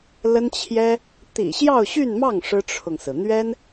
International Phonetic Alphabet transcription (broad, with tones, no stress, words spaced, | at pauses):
lə˥nt͡ɕʰjɛ˥ | t̪ḭ˨˩ɕjɑ˥˧ʊ̯ɕy˥˧nmɑ˥˩ŋ ʂɻ̩˥ʈ͡ʂʰʊ˨ŋsɹ̩˩ n̪ɥɛ˥n